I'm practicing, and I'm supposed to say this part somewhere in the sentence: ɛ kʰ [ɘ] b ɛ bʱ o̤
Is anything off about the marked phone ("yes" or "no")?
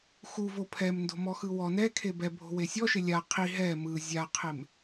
yes